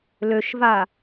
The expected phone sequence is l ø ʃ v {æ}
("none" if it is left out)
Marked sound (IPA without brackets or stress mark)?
a